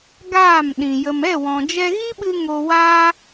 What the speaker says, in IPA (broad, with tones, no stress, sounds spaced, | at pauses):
ɡ aː˦˨ m ɗ ĩ˨ j ə˨ m ɛ˦˨ w ɔ̃˨ d͡ʒ ɛ˧ ɣ i˦ ɓ ɨ˧ ŋ o˧ w aː˦